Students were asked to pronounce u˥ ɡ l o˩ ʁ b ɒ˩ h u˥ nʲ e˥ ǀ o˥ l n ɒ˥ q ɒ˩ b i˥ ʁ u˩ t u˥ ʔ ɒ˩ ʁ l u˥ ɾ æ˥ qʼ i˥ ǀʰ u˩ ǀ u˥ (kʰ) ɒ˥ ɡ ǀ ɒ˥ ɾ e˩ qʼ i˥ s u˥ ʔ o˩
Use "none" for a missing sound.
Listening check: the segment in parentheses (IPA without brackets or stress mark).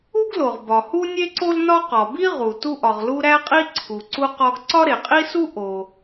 q